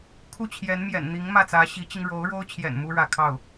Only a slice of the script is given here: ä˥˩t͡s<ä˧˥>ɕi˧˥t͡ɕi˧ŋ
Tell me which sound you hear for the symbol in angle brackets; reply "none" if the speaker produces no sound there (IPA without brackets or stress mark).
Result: ä˧˥